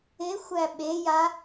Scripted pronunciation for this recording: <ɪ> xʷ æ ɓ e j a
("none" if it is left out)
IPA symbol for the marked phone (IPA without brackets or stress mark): ɪ